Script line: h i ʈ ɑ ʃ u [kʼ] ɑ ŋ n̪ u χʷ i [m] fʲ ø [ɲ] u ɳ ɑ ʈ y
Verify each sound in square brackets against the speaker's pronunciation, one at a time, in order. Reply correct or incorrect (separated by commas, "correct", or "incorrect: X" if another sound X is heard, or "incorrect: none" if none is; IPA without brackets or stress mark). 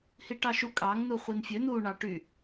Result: correct, incorrect: n, incorrect: n̪